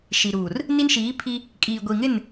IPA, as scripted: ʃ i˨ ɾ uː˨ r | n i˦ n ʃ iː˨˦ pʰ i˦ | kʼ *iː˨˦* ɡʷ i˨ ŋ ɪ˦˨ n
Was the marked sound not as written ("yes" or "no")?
yes